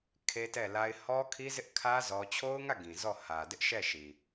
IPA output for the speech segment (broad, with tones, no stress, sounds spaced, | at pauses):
kʰ e˦ t ɛ˦˨ l a˦ ɪ̯ h ɔ˦ kʰ i˦ z ɪ˦ ʔ kʰ ä˦ z ɔ˦ t͡ɕʰ o˦ ʊ̯ ŋ ä˦˨ ɡ ĩ˨ z ɔ˦˨ h ä˨ d ɪ˦ ʔ ʃ ɛ˦˨ ʃ i˨